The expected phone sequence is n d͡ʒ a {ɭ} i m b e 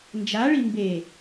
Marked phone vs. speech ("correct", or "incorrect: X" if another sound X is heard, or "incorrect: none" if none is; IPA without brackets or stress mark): correct